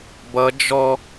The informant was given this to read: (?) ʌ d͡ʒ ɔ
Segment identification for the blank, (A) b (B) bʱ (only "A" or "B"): A